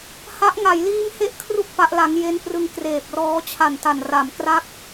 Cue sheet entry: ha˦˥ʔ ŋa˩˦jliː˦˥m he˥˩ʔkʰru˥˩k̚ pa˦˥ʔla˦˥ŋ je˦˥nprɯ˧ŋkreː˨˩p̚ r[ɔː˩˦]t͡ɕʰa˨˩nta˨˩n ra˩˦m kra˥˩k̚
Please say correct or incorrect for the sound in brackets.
incorrect